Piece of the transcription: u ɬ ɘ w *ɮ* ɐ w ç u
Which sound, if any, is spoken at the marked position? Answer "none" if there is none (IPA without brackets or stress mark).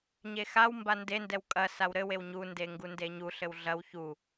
ɮ